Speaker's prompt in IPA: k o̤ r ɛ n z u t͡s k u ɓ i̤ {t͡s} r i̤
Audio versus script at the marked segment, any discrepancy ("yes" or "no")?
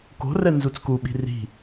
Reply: yes